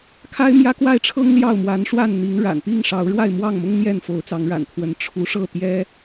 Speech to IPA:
kʰ a˦ ɪ̯ m j ä˦ k w a˥˨ ɪ̯ ʈ͡ʂʰ ɤ˦ ŋ l j ɑ˥˨ ʊ̯ m w a˨˦ n ʂ w a˥˨ n n̪ i˨˦ ŋ ɻ a̰˨˩ n p i˥˨ ŋ ʂ ɑ˨˦ ʊ̯ ɻ w a˥˨ ɪ̯ m w ɑ˥˨ ŋ m ʊ˦ ŋ n̪ j ɛ˥˨ n f o˨˦ ʊ̯ t͡s ɑ˨˦ ŋ ɻ a̰˨˩ n t̪ʰ w ə˨˦ n ʈ͡ʂʰ u˨˦ ʂ ɤ˥˨ t̪ j ɛ˦

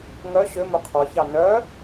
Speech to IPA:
ŋ œ ɕ ø m ɵ qʰ ɔ ç ɑ n œ

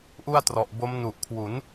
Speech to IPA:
ʔ u˥˩ a̯ t r ɔ˨˩ ʔ b o˦˥ m n u˨˩ ʔ kʰ w u˩˦ n

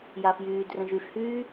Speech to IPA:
j a f j yː d r ə̃ ʒ y f h yː

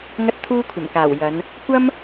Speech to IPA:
ŋ ɐ˧ t̚ t̪ʰ uː˧ kʷʰ ɐ˨˩ m k aː˨˩ w j ɐ˨˧ n | kʷ ɐ˥ m

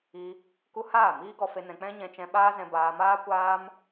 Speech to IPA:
i˧ | k u˦ h aː˦˨ m iː˦ ɡ ɔ˧ f e˧ n ɛ̃˧ k͡p ɛ̃˦ ɲ ɛ̃˧ t͡ʃ ɛ̃˧ ɓ aː˦ z ɛ̃˧ b aː˧ m aː˦ kʷ aː˦ m

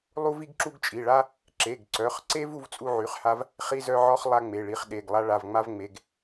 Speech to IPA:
lˠ u˥ v i˥ ɡ ǁ u˥ ɡ t͡ʃʼ i˩˧˩ ɭ a˥ | ǁ e˩˧˩ ɡ ǀ œ˩˧˩ χ ǀ e˥ v u˥ v t͡sʼ u˥ ʕ y˩˧˩ χ h a˥ v | χ i˥ z œ˥ ʕ ɔ˥ χ lˠ a˥ ŋ͡m e˩˧˩ ɭ i˩˧˩ χ ɗ e˩˧˩ ɡ lˠ a˥ ɭ a˩˧˩ v ŋ͡m a˥ v ŋ͡m e˩˧˩ ɡ

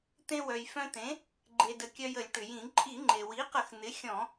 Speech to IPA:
t̪ ẽ˧ w œ˩ j f œ̃˧ t̪ ẽ˩˥ | ɡ͡ǃ e˩ d ə˩ kʲ œ˧ j ə˧˩˧ lʲ ʈ ʏ˩ j ĩ˧˩˧ ǃʼ i˧˩˧ ŋ͡ǃ e˩ w i˩˥ q ə˧˩˧ x n̪ ɪ˩˥ xʲ ɔ̃˧˩˧

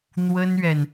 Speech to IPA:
n̪ w ə˥ n ɥ ɛ˨ n

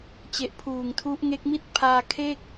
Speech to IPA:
t͡ɕ e˨˩ ʔ pʰ uː˨˩ ŋ tʰ u˦˥ ʔ ŋ e˦˥ k̚ m i˥˩ t̚ pʰ aː˧ kʰ e˥˩ k̚

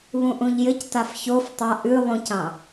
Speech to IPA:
β ũ ʔ ũ ʎ j ɘ c t a f ç o f tˤ a ʔ ʉ lˠ ũ c ɑ̃

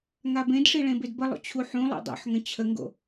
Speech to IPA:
ŋ a b ẽ d ʂ i ɭ ẽ b e d b ə lˠ o̰ t͡ɕʰ u ħ ũ lˠ o̰ dˤ o̰ ħ ŋ ə̃ t͡ɕʰ ə ŋ ɡ o̰

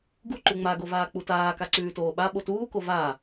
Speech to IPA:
ɡ u ǃ ʉ ŋ͡m a ɡ o v aː k͡p u t aː k a ǀ ʉː t oː ɓ a ɓ o t uː k o v aː

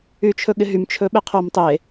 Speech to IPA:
y t͡ʃʰ ɵ ɠ ɪ ɦ y m t͡ʃʰ ɵ ɓ ɪ qʰ o m tˤ e

